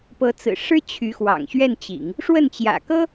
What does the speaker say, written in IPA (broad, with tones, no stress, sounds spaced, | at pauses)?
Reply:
p ɤ˧˥ t͡s ɹ̩˨˩ ʂ ɻ̩˥ t͡ɕʰ y˧˥ x w ɑ̰˨˩ ŋ ɕ ɥ ɛ˥˩ n t͡ɕ ḭ˨˩˦ ŋ | ʂ w ə˥˩ n t͡ɕ j ä̰˨˩ k ɤ˥